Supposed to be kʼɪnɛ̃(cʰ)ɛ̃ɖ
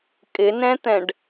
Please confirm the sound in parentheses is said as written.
no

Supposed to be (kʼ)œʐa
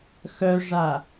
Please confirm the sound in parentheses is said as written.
no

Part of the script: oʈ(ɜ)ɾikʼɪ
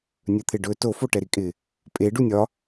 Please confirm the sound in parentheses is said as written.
no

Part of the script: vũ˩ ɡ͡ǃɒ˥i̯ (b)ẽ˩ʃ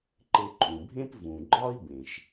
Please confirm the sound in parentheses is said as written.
yes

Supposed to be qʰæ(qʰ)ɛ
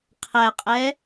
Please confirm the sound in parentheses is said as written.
no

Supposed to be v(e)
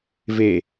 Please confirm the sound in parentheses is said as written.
yes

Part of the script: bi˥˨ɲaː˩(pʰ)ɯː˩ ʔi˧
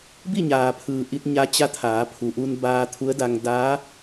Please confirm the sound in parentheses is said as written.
yes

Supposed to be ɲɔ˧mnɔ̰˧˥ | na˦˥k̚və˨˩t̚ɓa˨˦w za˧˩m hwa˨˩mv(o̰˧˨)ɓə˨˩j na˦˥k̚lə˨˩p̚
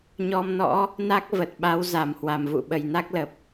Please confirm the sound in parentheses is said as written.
no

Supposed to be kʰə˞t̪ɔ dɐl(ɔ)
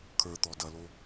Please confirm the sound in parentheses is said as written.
no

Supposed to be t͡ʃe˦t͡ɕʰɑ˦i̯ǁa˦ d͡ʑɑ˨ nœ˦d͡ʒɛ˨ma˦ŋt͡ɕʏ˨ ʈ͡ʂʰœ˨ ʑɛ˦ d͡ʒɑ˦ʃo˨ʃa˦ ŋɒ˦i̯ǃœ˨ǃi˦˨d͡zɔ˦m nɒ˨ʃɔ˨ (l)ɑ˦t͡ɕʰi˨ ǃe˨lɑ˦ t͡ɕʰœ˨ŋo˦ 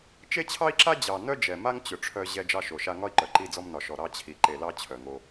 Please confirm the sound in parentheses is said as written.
no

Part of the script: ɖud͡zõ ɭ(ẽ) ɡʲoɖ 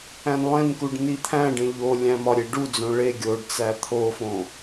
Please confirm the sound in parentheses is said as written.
no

